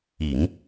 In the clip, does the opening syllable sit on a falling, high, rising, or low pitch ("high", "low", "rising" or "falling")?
low